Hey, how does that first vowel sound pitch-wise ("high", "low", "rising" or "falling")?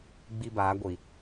high